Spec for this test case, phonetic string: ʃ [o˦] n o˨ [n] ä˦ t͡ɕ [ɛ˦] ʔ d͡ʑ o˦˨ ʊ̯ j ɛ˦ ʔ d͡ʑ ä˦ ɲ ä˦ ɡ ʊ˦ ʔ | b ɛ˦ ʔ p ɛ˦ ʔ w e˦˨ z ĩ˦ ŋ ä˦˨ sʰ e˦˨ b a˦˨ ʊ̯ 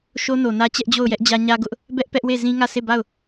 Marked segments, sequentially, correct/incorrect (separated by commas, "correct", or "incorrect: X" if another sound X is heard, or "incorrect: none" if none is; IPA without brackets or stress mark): correct, correct, correct